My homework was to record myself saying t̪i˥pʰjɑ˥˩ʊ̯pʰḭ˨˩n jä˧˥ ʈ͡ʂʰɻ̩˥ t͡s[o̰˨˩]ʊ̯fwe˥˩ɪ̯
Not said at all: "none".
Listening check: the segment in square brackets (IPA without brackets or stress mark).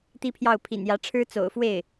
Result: o̰˨˩